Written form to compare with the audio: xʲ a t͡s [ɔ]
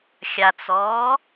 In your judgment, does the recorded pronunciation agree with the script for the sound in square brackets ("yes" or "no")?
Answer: yes